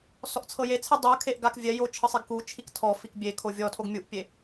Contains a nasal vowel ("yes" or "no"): no